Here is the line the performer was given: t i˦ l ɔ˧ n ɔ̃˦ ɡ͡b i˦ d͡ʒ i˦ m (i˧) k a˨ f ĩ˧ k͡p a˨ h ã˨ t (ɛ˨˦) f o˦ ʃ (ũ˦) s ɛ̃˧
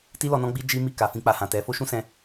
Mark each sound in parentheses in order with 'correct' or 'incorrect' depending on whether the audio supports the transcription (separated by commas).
incorrect, correct, correct